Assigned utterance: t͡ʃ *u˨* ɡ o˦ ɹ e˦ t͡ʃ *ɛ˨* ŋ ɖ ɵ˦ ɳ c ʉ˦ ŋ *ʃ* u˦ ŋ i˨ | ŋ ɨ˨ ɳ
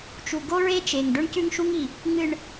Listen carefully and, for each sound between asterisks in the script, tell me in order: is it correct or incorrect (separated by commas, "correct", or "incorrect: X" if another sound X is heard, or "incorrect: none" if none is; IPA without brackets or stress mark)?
correct, incorrect: e˨, correct